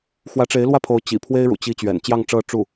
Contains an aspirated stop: yes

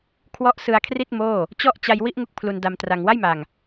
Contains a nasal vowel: no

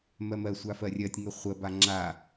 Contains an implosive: no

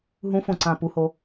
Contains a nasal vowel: yes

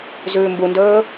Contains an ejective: no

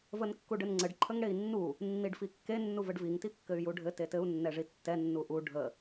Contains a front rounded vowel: yes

